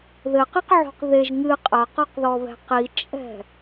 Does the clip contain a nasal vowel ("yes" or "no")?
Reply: no